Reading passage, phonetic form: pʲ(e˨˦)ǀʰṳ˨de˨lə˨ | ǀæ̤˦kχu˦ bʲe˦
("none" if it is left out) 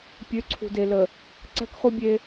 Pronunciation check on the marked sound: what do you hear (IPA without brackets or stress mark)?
ø˨˦